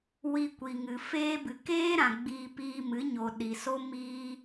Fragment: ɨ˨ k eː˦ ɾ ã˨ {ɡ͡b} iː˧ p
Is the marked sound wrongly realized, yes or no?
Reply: no